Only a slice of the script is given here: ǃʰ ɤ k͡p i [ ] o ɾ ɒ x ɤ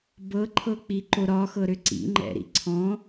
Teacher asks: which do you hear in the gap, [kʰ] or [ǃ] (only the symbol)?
ǃ